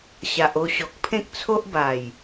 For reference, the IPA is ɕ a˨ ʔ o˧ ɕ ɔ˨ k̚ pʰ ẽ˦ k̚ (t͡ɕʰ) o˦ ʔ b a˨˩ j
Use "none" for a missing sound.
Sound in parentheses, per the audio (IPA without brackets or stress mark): t͡sʰ